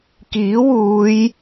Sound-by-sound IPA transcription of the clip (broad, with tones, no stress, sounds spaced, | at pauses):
k iː˨˥ w uː˨˧ j